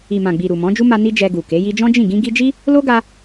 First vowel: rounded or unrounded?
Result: unrounded